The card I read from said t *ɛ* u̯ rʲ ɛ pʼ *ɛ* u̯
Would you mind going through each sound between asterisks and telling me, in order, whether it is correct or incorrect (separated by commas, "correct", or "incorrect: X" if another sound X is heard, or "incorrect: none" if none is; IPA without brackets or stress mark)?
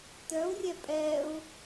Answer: incorrect: œ, correct